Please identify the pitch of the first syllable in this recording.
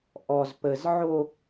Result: high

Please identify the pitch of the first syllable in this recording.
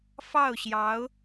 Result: falling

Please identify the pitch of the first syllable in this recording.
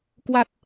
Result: low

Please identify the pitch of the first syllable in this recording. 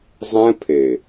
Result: high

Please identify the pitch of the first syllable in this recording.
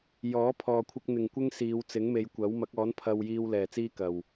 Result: rising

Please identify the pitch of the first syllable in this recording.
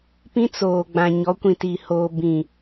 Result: high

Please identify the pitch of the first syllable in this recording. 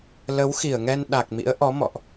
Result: rising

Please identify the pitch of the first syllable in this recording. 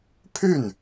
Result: falling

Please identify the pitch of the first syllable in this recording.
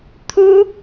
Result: high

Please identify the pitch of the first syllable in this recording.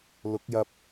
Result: rising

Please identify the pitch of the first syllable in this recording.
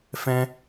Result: high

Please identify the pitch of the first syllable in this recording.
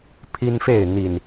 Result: high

